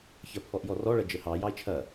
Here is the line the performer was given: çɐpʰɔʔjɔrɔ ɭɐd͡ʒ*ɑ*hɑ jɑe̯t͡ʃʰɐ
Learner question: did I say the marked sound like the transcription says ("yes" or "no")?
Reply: no